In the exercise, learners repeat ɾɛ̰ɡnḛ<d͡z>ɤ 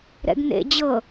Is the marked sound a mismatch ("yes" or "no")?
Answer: yes